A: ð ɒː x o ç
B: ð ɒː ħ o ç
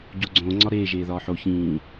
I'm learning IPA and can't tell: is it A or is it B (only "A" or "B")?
B